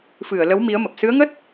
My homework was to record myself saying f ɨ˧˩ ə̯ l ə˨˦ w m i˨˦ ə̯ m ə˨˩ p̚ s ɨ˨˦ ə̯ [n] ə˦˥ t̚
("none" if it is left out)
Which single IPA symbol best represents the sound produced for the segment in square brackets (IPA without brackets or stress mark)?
ŋ